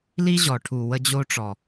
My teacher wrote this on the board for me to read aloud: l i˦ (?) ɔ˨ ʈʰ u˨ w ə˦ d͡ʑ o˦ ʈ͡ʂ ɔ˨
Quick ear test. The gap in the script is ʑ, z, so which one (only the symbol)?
ʑ